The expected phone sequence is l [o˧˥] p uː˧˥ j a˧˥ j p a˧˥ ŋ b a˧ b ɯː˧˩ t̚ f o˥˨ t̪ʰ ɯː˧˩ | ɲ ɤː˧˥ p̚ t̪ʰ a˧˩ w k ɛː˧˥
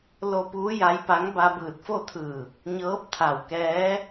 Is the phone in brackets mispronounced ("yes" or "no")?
yes